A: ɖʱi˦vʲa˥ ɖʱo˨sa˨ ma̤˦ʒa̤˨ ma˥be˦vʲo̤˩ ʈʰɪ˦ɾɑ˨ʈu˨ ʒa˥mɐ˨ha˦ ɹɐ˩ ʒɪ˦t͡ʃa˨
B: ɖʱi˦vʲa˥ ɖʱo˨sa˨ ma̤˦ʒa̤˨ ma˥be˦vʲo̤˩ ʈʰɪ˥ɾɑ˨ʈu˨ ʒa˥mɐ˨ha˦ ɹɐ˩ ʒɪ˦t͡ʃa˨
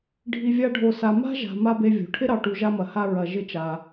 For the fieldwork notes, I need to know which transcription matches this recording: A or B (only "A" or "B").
B